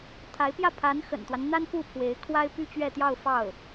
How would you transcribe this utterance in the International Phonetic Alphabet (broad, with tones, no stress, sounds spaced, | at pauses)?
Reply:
t̪ʰ a˧˥ ɪ̯ p j ä˥˩ pʰ a˧˥ n x ə̰˨˩ n t̪ w a˦ n n̪ a˥ n p u˥˩ pʰ w e˧˥ ɪ̯ kʰ w a˥ ɪ̯ p y˥ t͡ɕ ɥ ɛ˥˧ t̪ j ɑ˥˧ ʊ̯ f ɑ˥˩ ʊ̯